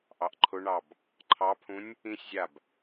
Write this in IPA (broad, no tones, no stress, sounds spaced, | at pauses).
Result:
ʔ ɑ ʔ ǃʰ ʊ ɳ ɑ b | ǃʰ ɑ pʰ ũ nʲ | ĩ sʲ zʲ a b